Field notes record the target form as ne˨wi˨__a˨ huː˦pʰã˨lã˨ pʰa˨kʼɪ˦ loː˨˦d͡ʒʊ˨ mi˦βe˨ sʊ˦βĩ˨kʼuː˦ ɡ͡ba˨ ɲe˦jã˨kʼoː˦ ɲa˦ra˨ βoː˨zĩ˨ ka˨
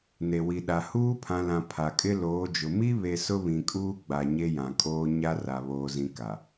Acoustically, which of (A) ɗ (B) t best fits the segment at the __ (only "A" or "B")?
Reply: A